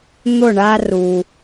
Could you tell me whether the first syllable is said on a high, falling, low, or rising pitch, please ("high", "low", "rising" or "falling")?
falling